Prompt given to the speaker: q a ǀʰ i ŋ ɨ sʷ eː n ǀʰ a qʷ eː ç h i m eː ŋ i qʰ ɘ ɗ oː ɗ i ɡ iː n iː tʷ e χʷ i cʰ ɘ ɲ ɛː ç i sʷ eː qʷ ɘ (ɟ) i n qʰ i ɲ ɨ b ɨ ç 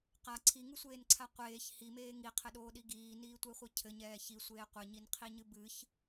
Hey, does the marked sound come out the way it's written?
no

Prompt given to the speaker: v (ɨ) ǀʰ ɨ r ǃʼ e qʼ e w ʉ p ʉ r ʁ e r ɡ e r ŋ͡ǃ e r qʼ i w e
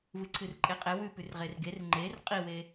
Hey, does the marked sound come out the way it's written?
yes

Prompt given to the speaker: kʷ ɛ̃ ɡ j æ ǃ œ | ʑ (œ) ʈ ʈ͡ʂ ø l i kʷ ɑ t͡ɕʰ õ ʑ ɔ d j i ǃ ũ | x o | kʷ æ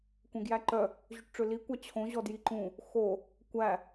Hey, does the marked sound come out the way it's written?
no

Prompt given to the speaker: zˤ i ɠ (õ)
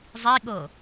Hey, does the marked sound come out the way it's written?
no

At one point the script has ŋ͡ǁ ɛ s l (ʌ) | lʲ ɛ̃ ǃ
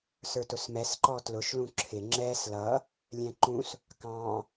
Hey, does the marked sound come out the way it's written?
yes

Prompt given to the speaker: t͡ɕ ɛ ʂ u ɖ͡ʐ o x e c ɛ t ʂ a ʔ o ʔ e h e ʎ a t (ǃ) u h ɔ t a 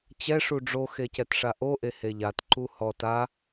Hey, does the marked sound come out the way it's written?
yes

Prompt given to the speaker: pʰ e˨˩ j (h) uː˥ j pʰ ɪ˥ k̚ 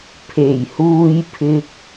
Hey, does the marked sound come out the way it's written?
yes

